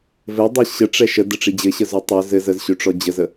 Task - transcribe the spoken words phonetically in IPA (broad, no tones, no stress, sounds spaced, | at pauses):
v ɘ dˤ ə ɕ ə ʈ͡ʂ ɛ ʃ ə d ə ʈ͡ʂ i d͡ʑ ɘ ɕ ə z ø tˤ ɵ z ɘ z ə z ɕ ø ʈ͡ʂ ɔ d͡ʑ ə z ə